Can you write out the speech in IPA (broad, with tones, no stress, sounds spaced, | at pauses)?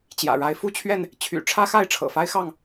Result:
t͡ɕ j ä̰˨˩ ɻ a˨˦ ɪ̯ f u˥˨ t͡ɕʰ ɥ ɛ˥˨ n | t͡ɕʰ y̰˨˩ ʈ͡ʂʰ ä˦ x a˥˨ ɪ̯ ʈ͡ʂʰ ɤ̰˨˩ f a˦ ɪ̯ x ɑ˥˨ ŋ